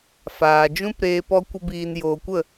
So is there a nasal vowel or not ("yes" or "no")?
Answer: yes